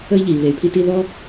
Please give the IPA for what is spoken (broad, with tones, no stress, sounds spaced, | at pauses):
ə˦ i̯ ʎ iː˨ β e˨ y̯ pʰ i˦ t i˦ ð ɔ˦